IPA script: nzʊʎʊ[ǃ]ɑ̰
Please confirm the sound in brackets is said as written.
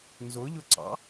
no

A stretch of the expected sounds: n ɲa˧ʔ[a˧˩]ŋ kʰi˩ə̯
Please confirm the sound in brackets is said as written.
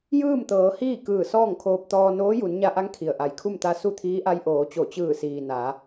no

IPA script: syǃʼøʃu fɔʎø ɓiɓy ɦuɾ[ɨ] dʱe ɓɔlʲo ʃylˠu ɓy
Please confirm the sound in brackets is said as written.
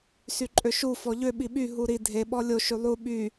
no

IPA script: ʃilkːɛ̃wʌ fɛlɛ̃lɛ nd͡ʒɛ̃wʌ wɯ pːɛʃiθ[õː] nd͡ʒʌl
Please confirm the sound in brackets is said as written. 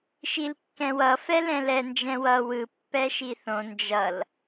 no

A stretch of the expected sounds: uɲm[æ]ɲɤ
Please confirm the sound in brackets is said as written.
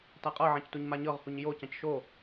no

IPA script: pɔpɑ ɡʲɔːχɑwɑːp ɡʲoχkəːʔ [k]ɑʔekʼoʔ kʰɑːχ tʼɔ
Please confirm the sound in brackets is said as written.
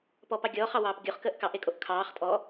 yes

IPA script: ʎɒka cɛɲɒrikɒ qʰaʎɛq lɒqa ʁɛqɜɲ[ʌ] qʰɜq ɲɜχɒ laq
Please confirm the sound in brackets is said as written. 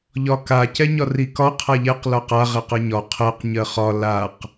no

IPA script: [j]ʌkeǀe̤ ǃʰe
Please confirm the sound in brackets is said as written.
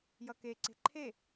yes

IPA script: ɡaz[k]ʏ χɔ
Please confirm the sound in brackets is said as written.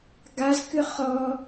yes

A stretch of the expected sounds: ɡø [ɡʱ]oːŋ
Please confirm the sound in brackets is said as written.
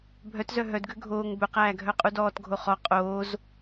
yes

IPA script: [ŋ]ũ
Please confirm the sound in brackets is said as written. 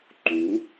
no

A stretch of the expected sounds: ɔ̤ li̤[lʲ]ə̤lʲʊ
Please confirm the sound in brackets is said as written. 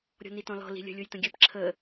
yes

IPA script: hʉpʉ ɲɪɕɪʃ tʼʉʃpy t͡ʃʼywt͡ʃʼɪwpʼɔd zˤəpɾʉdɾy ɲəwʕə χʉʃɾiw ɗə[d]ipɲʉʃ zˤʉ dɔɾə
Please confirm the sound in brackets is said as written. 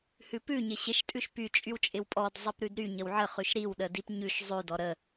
yes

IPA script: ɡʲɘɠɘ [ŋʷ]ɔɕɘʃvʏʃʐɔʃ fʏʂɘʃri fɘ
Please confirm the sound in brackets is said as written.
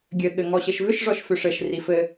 no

